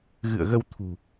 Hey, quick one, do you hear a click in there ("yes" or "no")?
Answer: no